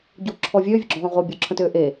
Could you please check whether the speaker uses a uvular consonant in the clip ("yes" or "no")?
yes